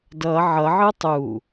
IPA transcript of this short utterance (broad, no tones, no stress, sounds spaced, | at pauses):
d ʌ ʕ ʌ ʕ ɯ tˤ u